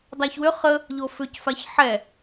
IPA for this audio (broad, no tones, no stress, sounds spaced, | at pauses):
dˤ a ç w ʏ χ ə | ʎ o f ʏ c f a ç ħ ɛ